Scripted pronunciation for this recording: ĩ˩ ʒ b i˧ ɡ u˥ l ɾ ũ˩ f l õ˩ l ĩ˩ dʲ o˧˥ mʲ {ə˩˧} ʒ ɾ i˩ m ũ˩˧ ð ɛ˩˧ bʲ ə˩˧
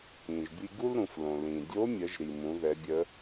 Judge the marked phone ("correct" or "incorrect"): correct